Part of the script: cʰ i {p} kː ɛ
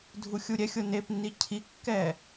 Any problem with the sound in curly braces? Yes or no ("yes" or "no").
yes